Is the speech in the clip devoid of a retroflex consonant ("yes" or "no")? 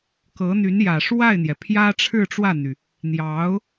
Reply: no